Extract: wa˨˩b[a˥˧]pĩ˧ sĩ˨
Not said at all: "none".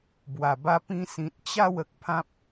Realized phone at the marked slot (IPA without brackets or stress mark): a˧